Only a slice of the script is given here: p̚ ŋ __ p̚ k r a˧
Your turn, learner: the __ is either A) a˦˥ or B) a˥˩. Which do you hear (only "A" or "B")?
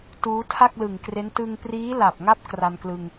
A